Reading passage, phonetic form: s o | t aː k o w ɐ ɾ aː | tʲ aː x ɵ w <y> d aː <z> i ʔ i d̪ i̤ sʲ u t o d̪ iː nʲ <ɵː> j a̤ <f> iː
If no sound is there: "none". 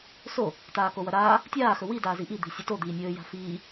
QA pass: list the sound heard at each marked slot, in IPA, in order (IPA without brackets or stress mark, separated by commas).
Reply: i, z, ɵː, f